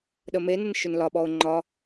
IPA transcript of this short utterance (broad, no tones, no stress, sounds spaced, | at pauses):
ɗ ə m e n ə n ʃ ʏ n l ɒ ɓ ɔ ʊ̯ ŋ͡ǃ ɒ